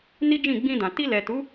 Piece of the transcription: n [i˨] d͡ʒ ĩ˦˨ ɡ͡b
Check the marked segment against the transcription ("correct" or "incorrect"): incorrect